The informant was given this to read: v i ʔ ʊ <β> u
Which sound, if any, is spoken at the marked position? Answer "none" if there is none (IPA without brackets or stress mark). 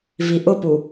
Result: p